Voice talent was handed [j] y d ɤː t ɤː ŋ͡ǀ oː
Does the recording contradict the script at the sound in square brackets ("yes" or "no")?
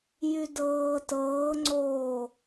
no